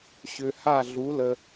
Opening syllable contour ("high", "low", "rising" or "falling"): low